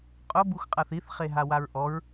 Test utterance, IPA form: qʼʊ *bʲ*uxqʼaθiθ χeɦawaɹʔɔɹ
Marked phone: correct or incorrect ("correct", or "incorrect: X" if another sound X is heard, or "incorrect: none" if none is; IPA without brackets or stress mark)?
incorrect: b